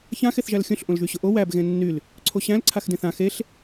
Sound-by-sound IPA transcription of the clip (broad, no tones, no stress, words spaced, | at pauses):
çãxeθʒæl xʲõɬʔõl ʒyɕʊʔo wæb ɣẽnːyl | ǀʰoɕæ̃lǀʰaxdẽθ ã xeɬ